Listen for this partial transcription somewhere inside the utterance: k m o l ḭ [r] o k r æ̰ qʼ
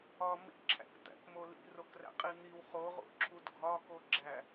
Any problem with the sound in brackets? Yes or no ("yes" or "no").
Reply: no